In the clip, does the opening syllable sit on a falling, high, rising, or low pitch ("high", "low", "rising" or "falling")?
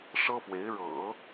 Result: high